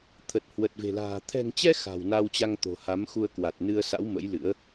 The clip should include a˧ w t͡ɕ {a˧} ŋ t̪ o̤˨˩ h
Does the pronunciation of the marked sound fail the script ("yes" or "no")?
no